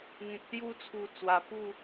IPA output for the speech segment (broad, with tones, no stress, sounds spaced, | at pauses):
ŋ ẽ˨ k̚ s j u˧ t͡sʰ u˨˩ t͡s w a˨˩ p u˥˧